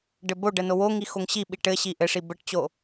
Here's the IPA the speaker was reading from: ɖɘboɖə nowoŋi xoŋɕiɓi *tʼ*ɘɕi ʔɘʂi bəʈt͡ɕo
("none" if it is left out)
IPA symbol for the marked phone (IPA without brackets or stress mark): ʈ